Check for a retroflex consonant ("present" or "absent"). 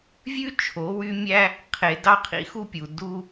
absent